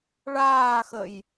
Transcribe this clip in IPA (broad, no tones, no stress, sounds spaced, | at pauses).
ɭ aː x ə j